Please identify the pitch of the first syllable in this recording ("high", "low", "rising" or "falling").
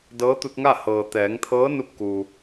rising